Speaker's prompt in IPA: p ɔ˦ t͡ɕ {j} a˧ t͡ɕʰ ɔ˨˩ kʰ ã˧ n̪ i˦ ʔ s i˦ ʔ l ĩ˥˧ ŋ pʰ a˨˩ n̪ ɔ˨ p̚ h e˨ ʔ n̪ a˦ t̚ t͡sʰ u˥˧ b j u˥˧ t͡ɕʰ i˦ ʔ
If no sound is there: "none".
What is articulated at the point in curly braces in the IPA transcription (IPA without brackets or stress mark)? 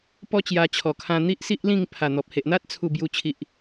j